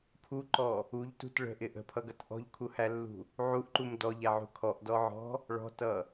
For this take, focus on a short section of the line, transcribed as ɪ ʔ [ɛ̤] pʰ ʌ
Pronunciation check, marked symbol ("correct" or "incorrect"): incorrect